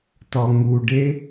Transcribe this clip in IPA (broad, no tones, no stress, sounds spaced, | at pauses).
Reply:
t ɔ ŋ u ɖ e